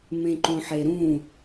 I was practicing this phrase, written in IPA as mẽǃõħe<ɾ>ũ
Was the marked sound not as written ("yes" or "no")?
no